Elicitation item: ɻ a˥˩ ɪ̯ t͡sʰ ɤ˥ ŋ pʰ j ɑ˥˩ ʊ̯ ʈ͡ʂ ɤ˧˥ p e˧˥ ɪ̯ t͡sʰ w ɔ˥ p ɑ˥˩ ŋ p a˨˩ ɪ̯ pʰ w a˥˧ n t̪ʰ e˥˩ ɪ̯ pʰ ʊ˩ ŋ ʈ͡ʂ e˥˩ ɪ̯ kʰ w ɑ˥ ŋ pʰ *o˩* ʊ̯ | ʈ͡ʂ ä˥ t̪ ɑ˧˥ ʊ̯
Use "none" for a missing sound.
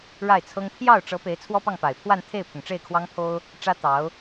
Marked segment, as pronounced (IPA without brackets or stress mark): o˥